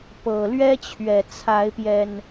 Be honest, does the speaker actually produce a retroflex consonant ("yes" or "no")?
no